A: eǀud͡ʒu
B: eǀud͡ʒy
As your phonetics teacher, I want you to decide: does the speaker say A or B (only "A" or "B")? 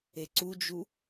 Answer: A